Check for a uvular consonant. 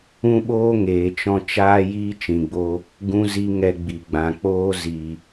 absent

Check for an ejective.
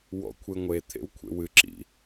absent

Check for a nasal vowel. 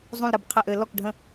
present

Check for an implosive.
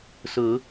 absent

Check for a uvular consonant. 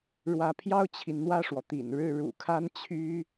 absent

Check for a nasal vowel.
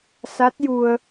absent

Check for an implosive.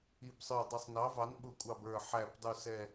present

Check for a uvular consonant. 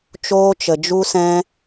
absent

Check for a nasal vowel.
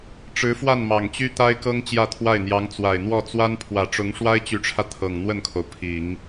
absent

